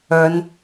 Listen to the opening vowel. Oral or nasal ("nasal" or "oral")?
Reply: oral